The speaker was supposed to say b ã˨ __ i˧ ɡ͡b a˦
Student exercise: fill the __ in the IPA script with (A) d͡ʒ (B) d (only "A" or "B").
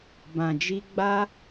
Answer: A